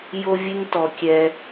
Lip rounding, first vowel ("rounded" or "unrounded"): rounded